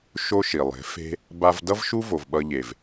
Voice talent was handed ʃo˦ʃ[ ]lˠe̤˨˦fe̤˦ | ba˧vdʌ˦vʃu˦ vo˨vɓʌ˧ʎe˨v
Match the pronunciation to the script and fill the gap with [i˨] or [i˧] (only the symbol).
i˨